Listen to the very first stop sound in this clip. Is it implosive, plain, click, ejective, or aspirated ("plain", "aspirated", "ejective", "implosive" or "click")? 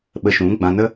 implosive